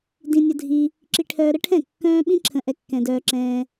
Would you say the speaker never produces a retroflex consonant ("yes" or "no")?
no